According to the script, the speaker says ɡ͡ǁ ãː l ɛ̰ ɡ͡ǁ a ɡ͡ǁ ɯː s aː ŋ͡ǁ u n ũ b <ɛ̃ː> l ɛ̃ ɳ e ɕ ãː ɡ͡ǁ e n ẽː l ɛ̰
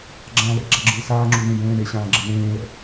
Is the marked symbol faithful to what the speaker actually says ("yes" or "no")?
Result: no